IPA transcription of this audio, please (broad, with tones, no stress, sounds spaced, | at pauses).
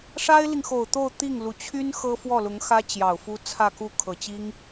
ʂ a˥ ɪ̯ l i˨ ŋ x o˨˩ ʊ̯ t̪ o˥˧ ʊ̯ t̪ i˥˩ ŋ l u˨˩ t͡ɕʰ y˥ n x ɤ˥ f w ɔ˥˩ l ʊ˧˥ ŋ x ä˥ t͡ɕ j ɑ˨˩ ʊ̯ f u˥ t͡sʰ ä˥˧ k u˥˩ kʰ ɤ˨˩ t͡ɕ i˥ ŋ